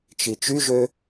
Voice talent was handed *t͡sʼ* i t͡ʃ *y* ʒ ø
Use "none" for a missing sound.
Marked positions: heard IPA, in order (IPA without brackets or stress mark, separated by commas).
t͡ʃ, y